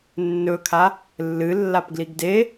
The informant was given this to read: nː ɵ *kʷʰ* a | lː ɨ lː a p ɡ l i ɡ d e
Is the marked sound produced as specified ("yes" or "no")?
no